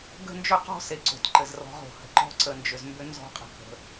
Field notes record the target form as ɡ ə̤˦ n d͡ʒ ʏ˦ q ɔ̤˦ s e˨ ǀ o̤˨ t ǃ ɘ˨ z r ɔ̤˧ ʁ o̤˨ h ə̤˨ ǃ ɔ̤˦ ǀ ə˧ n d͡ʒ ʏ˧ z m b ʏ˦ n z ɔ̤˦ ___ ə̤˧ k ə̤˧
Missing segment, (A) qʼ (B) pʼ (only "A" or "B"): A